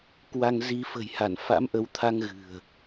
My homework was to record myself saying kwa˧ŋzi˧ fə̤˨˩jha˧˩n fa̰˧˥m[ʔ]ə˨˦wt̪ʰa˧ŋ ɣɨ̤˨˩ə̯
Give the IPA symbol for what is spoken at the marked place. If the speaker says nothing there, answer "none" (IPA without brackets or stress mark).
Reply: ʔ